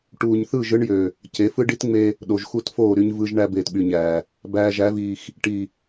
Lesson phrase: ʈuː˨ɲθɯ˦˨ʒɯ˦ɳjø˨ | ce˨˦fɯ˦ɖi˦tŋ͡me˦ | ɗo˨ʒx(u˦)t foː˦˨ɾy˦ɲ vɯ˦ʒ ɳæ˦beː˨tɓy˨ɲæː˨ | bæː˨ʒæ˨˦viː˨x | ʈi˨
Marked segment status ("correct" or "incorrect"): correct